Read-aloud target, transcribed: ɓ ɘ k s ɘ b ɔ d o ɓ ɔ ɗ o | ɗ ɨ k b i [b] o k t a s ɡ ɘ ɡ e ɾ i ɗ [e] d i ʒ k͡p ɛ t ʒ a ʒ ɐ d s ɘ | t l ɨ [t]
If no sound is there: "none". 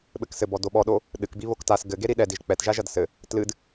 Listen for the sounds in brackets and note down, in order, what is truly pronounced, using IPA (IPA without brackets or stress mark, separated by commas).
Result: β, ɛ, d